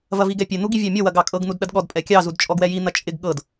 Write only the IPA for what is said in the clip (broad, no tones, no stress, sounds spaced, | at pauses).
v ɐ v i ɡ ɛ pʲ ɛ n̪ u ɡ i vʲ ɑ mʲ ɔ w ɐ ɡ ɑ kʼ ɤ ɡ n̪ u d ɗ ɐ d ɠ ɔ d pʼ ɛ kʲ ɑ z u d t͡ʃʼ ɔ ɡ w ɛ j i n̪ ɐ t͡ʃʼ ɪ ɡ ɠ ɤ d